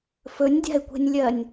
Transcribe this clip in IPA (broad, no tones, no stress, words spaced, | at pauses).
fɵnʲdʲa̤ɪ̯kʷe̤nʲlʲɜnʲ